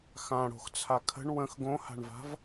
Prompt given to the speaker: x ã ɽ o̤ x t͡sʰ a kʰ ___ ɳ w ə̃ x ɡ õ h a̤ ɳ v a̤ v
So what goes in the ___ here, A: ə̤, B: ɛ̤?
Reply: A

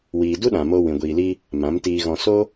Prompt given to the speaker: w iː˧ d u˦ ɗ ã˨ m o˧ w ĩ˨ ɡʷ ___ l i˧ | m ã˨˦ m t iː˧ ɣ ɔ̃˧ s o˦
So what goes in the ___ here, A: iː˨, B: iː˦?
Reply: A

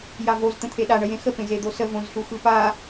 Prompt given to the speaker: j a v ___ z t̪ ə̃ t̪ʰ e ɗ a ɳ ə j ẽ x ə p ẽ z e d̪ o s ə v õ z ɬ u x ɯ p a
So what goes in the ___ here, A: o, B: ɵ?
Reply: A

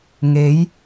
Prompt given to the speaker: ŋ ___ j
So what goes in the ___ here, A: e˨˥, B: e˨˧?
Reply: A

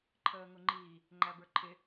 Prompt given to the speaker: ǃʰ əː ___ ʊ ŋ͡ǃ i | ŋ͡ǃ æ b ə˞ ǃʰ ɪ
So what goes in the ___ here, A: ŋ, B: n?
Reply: A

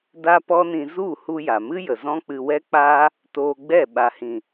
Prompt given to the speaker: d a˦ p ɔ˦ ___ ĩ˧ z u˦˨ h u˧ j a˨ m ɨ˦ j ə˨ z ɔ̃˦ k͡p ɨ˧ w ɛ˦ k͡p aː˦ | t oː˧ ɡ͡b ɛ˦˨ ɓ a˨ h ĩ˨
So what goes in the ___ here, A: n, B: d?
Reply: A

